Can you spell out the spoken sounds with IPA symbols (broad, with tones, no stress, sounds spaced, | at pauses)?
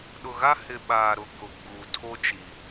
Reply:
ɗ ʊ˨ ɣ a˦ h ɪ˨ ɓ aː˨ ɾ ʊ˨ k ʊ˨ ɡ͡b uː˨ tʰ o˦ t͡ʃ i˨